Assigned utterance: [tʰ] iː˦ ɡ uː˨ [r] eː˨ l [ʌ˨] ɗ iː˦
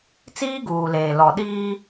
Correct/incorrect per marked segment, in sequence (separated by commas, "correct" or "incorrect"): incorrect, incorrect, incorrect